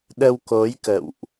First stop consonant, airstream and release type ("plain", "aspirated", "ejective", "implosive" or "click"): implosive